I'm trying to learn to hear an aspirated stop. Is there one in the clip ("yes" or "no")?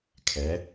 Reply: yes